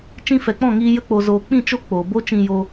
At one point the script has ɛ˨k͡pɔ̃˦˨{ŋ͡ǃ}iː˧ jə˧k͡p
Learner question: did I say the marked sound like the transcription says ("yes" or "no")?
no